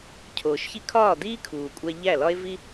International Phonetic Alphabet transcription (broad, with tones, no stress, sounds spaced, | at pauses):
cʰ oː˨ ʃ ç i˦ kʰ ɒː˦˨ d iː˦ kʰ uː˨ kʷʼ æ˧ ʎ æ˦˨ l ɒ˦ e̯ v i˦